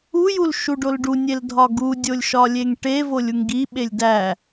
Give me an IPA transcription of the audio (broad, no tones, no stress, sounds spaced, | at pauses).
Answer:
u j u l ʃ u ɖ o l ɖ u nʲ e l dʱ ɒ ɡ u dʲ o lʲ ʃ ɒ lʲ e ŋ ʈ e v o lʲ u ŋ ɡ i ɓ e lʲ d æ